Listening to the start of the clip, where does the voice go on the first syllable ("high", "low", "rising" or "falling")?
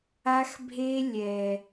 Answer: high